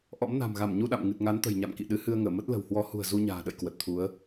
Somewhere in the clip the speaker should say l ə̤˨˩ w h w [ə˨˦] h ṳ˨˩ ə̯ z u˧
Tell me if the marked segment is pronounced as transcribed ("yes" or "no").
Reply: no